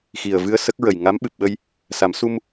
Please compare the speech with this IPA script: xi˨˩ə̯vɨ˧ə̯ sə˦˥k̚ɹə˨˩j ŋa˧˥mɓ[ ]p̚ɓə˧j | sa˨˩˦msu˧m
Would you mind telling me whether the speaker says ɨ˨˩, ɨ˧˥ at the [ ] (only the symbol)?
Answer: ɨ˨˩